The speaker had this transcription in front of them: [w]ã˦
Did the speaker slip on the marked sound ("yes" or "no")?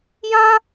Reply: yes